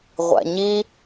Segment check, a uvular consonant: present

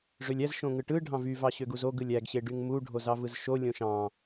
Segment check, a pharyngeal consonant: absent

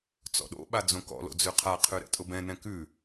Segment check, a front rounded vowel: absent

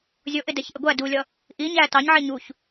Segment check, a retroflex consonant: absent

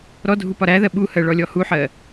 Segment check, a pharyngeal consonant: present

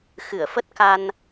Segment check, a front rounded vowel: absent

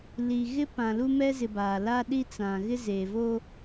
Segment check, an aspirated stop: absent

